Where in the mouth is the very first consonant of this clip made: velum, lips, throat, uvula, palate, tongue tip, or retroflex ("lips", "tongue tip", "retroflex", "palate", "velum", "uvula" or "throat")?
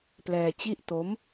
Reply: lips